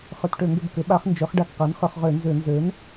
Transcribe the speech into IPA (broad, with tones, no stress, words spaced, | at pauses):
χʏ˧˩˧tʈø˧˩˧ŋɡʏ˦˨b kʏ˩˥ɓa˧˥χ nd͡ʒø˩˥χ ɖa˦˨kqa˩˥nχʏ˧˩˧χʁø˧˩˧ nzʏ˧˩˧ nzø˩˥n